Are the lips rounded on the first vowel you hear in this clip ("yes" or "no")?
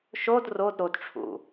yes